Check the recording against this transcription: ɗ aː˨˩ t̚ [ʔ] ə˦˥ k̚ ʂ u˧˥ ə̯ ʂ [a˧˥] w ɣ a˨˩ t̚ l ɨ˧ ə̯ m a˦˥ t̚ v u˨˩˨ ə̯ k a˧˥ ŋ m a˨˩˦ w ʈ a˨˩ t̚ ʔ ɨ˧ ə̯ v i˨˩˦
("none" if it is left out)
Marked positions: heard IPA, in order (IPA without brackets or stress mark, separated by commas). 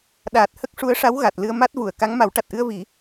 h, a˧˥